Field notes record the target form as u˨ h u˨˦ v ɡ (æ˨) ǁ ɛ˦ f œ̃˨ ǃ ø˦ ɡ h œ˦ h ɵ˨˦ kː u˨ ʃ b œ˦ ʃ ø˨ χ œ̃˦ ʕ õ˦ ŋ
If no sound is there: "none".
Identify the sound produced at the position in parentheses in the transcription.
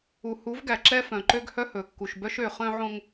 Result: æ˨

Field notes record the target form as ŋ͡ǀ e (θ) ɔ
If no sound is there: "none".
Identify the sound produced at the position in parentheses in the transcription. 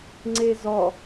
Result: z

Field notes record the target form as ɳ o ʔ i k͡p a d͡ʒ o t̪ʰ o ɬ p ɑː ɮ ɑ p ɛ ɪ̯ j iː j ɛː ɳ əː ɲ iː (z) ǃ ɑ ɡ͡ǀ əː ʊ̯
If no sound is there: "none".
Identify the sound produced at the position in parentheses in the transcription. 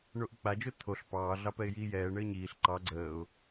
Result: ɬ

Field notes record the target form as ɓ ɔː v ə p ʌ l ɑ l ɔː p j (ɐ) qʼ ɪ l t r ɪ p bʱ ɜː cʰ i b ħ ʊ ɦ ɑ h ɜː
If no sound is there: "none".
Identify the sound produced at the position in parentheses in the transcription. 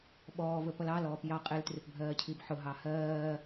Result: ɑ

